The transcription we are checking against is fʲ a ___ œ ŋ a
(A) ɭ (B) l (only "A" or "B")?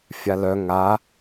B